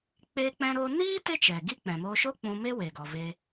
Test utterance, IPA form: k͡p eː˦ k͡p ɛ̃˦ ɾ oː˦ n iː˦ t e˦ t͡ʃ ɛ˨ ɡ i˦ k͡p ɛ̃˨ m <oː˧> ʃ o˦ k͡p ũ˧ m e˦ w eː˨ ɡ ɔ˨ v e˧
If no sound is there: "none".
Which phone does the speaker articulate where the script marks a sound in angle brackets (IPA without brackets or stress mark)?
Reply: o˧